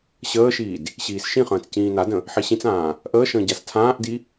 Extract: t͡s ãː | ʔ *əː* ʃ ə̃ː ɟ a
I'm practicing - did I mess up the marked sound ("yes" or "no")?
no